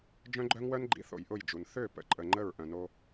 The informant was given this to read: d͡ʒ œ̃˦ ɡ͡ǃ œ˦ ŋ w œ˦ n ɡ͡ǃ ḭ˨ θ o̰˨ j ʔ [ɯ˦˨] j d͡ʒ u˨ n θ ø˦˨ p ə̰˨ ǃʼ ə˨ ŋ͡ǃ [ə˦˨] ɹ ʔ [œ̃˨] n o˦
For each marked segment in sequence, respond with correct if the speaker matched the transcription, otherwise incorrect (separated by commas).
incorrect, correct, correct